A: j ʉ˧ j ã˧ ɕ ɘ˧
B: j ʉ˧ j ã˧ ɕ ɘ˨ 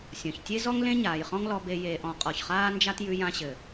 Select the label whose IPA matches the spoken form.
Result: B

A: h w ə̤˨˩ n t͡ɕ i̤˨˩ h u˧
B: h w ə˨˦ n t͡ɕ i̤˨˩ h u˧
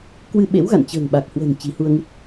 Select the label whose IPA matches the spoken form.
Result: A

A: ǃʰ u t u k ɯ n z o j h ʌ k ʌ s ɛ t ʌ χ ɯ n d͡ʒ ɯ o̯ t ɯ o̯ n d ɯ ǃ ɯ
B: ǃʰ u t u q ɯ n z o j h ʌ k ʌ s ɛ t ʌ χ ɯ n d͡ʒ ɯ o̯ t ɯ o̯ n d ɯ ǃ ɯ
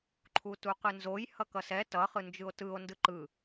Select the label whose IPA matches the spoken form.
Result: B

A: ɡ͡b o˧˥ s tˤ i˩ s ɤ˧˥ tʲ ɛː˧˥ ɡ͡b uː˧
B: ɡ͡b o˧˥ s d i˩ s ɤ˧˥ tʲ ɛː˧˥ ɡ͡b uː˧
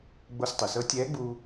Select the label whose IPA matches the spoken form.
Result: A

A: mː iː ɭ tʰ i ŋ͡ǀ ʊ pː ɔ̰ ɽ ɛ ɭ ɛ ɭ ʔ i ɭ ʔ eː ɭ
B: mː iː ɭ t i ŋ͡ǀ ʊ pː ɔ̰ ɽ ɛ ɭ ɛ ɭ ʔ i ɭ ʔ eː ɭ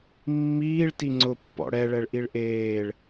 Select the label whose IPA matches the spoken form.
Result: B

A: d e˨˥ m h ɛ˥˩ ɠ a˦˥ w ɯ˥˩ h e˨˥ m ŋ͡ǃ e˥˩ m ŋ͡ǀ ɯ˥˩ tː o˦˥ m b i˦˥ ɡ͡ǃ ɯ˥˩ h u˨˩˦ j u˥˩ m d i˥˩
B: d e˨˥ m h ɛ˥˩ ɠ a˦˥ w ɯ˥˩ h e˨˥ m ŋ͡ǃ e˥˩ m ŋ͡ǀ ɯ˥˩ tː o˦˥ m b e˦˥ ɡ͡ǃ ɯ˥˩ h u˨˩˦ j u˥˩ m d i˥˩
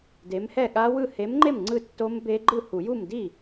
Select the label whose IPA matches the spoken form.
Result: B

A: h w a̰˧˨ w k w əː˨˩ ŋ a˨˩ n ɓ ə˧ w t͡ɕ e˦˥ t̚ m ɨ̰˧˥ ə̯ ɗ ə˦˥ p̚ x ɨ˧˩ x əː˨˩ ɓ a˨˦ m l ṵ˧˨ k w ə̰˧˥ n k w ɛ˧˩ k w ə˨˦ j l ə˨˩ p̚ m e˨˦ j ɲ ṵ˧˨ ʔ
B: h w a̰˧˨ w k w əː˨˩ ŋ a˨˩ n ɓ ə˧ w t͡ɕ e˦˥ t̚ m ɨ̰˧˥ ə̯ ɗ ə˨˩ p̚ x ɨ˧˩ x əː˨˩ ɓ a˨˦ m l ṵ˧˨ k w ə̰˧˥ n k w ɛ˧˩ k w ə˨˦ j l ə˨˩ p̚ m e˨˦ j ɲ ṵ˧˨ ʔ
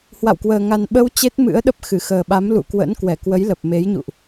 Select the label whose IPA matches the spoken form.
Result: A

